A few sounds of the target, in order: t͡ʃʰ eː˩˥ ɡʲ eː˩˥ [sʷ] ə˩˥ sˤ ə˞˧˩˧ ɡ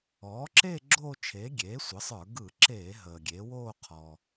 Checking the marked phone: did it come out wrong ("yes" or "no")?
no